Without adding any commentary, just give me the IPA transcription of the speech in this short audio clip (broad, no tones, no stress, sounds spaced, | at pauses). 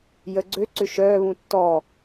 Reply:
j ə ɡ͡ǀ ø ǀ ʏ ʃ œː β ũ tː ɔ